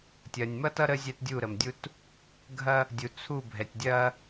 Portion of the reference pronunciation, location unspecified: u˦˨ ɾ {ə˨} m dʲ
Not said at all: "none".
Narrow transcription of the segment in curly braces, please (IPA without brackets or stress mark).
ə˨